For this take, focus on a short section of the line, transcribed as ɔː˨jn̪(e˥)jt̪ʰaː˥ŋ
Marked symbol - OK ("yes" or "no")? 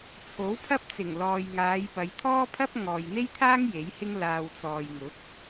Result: yes